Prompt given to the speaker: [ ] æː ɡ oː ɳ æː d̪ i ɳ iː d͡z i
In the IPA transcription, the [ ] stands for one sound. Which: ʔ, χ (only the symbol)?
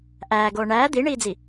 ʔ